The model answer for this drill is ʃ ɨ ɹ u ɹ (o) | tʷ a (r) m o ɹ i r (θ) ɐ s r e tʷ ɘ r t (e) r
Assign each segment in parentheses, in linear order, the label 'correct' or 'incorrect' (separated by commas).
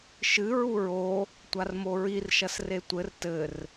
correct, correct, incorrect, incorrect